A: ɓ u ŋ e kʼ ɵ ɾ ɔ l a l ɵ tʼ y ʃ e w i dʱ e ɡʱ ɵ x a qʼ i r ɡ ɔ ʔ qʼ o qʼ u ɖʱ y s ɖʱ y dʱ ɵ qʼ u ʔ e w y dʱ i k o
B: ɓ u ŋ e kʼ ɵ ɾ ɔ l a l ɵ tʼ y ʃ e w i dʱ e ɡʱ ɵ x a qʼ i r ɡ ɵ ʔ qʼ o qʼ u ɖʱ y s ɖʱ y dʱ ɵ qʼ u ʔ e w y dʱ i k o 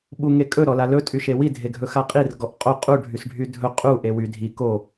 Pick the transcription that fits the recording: A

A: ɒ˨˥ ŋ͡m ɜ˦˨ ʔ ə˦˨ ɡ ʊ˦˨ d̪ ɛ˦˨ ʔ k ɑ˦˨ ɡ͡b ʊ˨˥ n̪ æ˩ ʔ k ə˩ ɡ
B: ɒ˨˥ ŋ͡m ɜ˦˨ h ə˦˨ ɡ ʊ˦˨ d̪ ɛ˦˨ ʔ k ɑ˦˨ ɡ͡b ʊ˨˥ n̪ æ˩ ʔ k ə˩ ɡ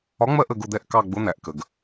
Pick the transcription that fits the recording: A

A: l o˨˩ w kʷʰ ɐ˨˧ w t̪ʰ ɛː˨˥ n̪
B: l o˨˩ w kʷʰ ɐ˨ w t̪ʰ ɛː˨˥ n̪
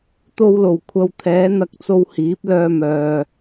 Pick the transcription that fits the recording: A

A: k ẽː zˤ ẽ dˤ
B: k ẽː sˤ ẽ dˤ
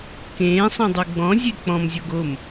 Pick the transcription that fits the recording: B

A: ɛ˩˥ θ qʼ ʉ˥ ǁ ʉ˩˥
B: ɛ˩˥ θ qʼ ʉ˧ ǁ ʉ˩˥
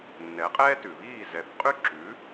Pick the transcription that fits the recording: A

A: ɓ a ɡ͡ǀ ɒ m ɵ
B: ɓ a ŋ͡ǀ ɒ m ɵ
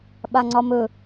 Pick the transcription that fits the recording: B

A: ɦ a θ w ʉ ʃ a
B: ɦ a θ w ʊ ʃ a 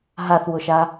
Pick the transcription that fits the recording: B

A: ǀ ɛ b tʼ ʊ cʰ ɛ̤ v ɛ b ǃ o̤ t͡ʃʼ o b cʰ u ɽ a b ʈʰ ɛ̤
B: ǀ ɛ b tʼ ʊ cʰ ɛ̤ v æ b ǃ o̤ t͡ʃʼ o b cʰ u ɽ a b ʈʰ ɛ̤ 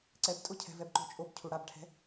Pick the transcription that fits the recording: A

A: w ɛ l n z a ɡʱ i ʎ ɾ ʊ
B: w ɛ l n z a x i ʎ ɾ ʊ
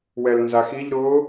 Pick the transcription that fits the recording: B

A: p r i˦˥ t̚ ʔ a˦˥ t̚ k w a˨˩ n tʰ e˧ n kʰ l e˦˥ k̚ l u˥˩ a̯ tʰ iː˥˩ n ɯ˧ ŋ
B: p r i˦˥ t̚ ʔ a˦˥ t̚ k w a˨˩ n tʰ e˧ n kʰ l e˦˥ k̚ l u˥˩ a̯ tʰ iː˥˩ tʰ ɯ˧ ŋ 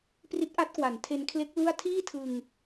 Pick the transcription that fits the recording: B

